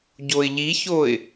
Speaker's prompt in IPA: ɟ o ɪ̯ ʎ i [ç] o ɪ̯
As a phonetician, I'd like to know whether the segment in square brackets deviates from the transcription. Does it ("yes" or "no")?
no